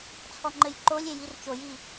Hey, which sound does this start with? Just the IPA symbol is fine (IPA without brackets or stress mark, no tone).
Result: t͡sʰ